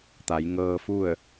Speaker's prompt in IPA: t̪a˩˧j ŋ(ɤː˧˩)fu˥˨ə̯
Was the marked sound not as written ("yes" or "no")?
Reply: yes